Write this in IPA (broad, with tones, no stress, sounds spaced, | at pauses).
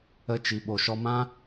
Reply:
ə˧ t͡ʃ i˨ ɓ o˨ ʃ ɔ˧ m ã˦